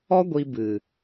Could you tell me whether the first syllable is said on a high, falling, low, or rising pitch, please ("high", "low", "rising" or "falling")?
high